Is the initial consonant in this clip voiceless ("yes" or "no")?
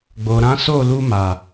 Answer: no